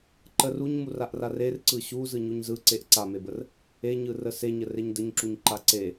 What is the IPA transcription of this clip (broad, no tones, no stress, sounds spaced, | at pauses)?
ǃ ə r u ɲ m u r a ʔ r a r e r ǀ ɯ ɕ u z ɯ ɲ u ɲ z ɯ ǀ e ʔ ǀ a m e b ə r | e ɲ ɯ r ə s e ɲ ə r e ɲ d ə ɲ ǁ u ɲ ǃ a ǀ e